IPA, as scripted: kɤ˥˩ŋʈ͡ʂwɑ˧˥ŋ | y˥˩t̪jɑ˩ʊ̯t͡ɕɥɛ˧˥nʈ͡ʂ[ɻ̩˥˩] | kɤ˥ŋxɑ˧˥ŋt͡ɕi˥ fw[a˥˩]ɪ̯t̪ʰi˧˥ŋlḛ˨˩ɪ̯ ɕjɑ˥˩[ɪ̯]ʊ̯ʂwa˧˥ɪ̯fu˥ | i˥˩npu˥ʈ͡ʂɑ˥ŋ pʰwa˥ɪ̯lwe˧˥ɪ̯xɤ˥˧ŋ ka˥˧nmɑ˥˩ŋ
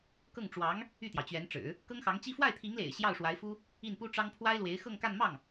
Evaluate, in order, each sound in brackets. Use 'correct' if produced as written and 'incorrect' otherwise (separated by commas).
incorrect, correct, incorrect